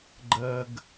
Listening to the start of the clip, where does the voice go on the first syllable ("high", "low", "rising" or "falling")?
high